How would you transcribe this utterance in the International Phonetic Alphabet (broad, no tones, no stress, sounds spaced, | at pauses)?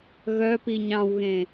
ɣ œ p i ɲ ɑ̃ w ɣ ẽ